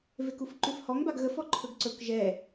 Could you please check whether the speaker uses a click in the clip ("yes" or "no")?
yes